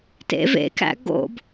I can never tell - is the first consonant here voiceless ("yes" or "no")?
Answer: yes